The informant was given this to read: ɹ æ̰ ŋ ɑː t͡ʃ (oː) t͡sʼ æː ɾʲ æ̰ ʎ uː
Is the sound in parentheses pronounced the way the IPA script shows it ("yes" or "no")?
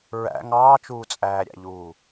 no